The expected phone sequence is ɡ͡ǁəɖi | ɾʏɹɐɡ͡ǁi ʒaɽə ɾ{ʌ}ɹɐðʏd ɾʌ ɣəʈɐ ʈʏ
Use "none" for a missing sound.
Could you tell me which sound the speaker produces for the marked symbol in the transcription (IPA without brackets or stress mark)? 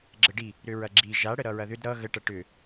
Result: ʌ